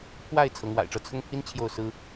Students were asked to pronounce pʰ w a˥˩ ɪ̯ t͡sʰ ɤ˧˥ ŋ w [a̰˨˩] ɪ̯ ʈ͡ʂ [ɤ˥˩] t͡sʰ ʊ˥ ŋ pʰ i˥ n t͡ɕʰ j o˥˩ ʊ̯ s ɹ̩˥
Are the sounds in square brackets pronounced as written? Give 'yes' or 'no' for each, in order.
yes, yes

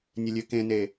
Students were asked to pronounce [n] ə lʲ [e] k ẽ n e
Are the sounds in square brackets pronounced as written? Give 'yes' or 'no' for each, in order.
no, no

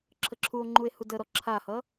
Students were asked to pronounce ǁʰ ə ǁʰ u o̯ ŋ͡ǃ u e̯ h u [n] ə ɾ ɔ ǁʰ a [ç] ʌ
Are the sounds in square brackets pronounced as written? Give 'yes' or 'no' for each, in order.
no, no

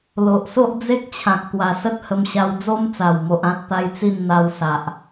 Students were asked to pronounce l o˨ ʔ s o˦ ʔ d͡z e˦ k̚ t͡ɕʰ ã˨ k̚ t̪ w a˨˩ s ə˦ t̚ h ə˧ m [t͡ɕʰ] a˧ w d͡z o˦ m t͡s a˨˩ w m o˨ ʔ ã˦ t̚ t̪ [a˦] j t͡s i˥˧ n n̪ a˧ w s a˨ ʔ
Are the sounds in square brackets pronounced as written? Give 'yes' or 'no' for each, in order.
no, yes

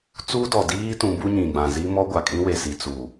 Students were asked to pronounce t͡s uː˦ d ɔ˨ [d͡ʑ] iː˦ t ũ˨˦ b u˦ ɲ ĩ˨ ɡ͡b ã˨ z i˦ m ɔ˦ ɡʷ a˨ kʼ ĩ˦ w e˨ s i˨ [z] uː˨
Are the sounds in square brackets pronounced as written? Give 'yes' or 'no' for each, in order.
no, no

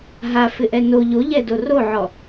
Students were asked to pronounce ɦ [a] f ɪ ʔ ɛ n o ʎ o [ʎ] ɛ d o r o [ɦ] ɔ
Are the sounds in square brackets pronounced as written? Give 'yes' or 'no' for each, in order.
yes, yes, no

